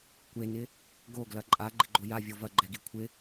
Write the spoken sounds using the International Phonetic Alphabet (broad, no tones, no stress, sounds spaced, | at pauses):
kʷ e n ɪ | ɡ o ɡ l ɐ ǃʼ a ɡ͡ǃ ɪ ɡ͡ǃ o j a vʲ o v ɐ ɡ͡ǃ ɛ ɡ i kʷʰ ɪ